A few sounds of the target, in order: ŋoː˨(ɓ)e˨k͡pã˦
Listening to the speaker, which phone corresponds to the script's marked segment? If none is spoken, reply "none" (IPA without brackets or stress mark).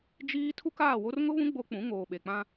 ɓ